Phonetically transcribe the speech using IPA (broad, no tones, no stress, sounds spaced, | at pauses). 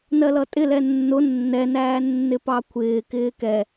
n ɜ l ʌ tʼ ɪ l ɛ nː ʊ nː ɛ n æː nː ɪ p ɑ kʷʰ ɪː k ɪː k ɛ